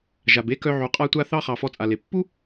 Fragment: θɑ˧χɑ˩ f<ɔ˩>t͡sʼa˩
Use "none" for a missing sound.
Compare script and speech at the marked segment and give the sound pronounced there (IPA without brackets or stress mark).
ɔ˧